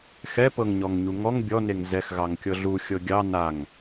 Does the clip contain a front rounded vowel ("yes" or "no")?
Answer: no